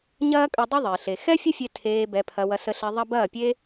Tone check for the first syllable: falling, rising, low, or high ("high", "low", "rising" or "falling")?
high